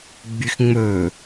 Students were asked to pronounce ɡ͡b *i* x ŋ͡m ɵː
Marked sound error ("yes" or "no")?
yes